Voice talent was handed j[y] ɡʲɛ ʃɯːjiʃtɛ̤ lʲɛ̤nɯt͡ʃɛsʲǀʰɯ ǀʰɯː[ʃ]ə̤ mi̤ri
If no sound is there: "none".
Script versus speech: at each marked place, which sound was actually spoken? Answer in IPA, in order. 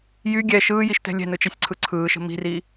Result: y, ʃ

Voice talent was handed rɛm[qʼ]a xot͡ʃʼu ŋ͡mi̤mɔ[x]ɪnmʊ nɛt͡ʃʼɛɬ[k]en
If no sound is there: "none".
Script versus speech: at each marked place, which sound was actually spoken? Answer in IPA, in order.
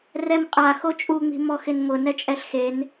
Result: qʼ, x, x

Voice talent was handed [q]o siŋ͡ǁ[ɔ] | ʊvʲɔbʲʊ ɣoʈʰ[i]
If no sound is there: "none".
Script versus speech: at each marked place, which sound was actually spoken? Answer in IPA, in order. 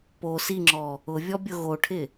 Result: p, ɔ, ɪ

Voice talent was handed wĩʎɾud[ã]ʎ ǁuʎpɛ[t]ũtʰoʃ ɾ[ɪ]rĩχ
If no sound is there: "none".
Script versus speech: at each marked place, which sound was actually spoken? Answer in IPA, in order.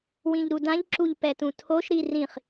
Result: ã, t, i

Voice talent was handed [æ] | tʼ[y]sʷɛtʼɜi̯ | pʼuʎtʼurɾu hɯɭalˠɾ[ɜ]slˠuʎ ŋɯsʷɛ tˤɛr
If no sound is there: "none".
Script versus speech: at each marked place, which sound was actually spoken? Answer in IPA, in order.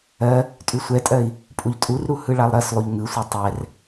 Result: ɜ, y, ɜ

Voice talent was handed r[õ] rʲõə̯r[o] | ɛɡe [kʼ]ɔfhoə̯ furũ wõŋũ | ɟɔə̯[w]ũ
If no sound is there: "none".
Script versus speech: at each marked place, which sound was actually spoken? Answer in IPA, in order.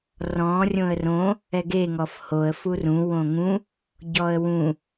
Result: ɔ̃, õ, ŋ, w

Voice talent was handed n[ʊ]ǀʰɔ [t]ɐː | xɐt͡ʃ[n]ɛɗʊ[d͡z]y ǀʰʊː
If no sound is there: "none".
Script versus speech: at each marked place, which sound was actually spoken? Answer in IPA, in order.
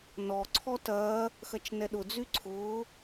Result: ɔ, t, n, d͡z

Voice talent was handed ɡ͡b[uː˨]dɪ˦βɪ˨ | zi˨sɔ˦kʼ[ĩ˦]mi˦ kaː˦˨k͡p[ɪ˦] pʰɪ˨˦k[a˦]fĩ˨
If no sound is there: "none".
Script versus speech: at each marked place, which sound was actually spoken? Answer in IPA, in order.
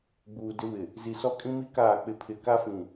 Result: uː˨, ĩ˦, ɪ˦, a˦

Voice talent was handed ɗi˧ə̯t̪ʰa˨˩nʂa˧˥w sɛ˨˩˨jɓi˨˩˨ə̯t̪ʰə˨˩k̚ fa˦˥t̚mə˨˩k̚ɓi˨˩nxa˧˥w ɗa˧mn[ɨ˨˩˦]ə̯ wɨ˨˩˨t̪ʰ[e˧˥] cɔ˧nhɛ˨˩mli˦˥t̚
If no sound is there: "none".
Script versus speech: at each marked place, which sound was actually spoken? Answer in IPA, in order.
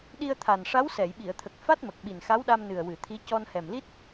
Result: ɨ˨˩, i˧˥

